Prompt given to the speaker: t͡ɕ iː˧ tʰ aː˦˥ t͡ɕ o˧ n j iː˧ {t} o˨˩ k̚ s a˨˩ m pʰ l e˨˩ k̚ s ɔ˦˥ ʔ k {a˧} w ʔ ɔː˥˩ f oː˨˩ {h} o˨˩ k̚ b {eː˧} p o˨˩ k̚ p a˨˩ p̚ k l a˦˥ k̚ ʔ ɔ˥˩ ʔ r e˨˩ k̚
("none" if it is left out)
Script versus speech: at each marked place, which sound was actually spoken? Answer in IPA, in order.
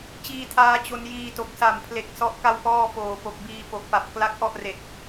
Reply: t, a˥˩, p, iː˧

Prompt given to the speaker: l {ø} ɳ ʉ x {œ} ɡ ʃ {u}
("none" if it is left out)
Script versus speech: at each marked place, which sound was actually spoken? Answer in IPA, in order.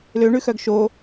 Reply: ø, œ, o

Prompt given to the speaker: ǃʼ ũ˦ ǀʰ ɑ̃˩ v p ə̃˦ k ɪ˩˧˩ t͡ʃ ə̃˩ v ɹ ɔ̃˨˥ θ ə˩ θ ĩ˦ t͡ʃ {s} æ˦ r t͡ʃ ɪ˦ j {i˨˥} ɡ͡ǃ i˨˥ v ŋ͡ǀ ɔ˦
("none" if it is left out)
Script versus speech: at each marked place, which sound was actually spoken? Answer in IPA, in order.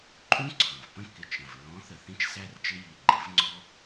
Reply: s, i˩˧˩

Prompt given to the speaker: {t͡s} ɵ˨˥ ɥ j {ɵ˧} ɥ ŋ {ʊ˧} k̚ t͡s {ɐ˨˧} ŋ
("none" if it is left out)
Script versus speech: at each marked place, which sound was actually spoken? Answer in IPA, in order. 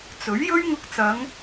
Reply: t͡s, ɵ˥, ʊ˧, ɐ˨˧

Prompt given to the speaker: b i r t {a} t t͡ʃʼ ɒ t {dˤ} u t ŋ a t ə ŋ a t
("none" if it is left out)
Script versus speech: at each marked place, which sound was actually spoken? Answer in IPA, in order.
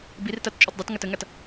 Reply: a, dˤ

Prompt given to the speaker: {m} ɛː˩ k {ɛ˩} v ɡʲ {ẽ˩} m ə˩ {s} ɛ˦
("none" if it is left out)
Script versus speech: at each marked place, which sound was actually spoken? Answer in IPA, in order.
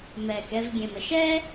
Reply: m, ɛ˨, ẽ˩, ʃ

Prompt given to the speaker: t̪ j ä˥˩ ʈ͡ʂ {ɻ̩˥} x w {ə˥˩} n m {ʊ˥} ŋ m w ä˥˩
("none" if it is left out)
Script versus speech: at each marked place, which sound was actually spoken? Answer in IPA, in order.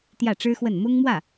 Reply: ɻ̩˥, ə˥˩, ʊ˥

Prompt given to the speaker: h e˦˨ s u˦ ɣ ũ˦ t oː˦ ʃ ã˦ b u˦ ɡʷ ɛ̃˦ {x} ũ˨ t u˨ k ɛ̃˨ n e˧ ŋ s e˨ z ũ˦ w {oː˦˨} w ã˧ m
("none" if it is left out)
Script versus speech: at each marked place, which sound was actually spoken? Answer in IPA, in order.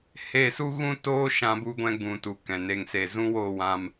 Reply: ɡ, oː˦˨

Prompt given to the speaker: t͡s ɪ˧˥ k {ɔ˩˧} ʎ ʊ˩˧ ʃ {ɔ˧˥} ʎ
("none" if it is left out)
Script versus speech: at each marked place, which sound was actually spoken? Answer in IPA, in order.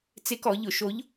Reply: ɔ˩˧, o˧˥

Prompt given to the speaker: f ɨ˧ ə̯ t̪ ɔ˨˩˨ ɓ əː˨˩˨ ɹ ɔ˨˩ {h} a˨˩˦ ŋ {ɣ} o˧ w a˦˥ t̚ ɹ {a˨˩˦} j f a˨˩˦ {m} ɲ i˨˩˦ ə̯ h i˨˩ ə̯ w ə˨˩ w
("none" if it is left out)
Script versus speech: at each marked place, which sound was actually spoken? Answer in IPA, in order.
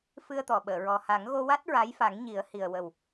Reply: h, ɣ, a˧˥, ŋ

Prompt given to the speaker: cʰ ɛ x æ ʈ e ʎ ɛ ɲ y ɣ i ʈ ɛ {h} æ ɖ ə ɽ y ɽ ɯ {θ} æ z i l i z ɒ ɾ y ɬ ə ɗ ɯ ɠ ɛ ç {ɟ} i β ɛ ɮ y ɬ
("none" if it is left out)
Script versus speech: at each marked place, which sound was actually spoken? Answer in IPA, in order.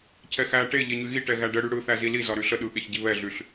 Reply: ɣ, θ, ɟ

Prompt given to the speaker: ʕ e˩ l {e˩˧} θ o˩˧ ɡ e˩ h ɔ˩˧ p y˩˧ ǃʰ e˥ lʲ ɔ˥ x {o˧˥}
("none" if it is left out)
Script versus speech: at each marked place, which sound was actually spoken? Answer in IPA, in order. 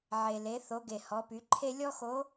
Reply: e˩˧, o˧˥

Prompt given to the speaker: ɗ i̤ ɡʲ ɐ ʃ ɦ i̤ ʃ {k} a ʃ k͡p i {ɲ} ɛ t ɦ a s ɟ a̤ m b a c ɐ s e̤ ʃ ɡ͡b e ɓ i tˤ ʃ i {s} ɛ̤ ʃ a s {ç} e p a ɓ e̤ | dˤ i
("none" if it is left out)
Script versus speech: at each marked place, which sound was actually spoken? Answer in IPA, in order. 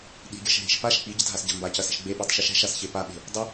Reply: p, ɟ, ʃ, ç

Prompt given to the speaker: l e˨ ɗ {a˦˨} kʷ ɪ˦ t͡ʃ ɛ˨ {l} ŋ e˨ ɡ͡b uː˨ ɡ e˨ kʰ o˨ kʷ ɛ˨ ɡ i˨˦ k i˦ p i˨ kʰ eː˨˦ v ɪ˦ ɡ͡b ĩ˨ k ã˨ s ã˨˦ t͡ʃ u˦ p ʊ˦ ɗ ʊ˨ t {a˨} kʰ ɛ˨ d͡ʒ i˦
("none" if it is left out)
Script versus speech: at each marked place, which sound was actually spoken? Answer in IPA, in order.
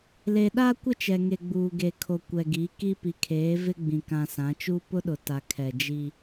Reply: a˦, none, a˨

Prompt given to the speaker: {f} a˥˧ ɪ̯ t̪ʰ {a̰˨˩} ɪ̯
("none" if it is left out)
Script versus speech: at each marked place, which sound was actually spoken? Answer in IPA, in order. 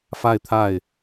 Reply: f, a˥˩

